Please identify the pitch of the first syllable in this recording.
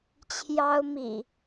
high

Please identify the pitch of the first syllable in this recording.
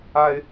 low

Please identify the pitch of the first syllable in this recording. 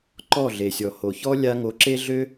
falling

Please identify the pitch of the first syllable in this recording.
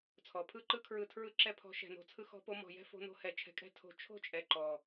low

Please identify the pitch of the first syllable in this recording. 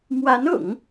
rising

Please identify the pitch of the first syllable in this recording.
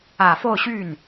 low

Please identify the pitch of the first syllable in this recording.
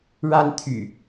high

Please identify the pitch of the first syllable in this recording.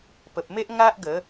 low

